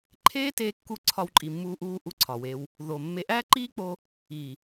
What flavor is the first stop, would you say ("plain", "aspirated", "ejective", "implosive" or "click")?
click